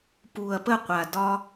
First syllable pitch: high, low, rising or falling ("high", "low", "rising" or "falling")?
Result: low